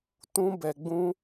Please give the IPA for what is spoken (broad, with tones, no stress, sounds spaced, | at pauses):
t ũ˦ b ɛ˧ ɡ͡b ũ˦